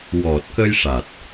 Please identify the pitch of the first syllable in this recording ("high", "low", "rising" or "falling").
low